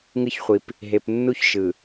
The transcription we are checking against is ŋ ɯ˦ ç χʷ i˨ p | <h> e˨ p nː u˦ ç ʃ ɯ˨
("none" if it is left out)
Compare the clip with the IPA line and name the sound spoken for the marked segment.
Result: ɦ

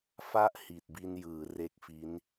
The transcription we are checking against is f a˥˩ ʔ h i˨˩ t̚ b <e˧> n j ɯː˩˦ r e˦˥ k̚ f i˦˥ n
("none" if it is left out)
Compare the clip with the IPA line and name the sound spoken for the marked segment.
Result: i˧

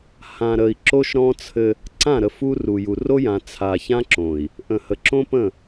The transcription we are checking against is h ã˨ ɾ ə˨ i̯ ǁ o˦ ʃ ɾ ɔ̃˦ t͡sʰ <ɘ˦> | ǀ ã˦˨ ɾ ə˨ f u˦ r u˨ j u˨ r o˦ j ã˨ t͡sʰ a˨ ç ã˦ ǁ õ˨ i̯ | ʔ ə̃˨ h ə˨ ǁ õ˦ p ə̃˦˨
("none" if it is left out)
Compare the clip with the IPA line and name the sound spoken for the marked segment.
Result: ɘ˦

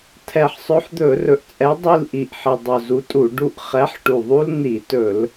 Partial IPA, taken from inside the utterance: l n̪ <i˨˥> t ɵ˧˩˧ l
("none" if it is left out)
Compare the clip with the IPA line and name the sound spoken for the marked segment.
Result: i˧˩˧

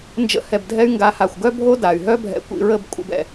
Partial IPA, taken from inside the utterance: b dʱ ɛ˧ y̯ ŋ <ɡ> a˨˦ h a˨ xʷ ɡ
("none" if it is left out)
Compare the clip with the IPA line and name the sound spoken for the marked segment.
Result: ɡ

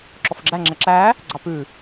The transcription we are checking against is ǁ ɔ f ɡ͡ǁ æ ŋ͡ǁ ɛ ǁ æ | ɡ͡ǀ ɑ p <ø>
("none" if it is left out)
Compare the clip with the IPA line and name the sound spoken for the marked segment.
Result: ʉ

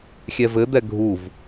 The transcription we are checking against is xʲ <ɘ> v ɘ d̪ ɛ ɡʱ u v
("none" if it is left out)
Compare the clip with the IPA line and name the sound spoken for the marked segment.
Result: ɛ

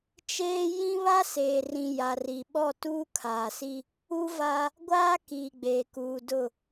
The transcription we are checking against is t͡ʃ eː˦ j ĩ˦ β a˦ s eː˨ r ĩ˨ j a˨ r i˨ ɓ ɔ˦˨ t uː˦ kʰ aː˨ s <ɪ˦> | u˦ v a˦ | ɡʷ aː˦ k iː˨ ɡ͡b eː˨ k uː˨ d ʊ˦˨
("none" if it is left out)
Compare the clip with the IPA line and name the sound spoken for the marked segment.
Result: i˦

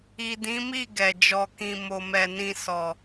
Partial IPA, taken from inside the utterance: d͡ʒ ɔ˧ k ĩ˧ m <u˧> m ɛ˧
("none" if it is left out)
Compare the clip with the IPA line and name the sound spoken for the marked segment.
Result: o˧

